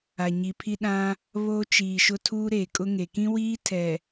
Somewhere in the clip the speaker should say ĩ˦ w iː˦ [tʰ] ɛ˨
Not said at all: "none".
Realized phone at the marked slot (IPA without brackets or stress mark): tʰ